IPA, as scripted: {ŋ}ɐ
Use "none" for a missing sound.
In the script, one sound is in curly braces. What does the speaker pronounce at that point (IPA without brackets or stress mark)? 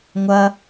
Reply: ŋʷ